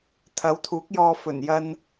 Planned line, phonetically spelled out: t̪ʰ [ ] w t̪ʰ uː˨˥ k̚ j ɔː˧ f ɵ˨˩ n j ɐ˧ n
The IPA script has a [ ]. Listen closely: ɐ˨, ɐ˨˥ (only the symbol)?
ɐ˨˥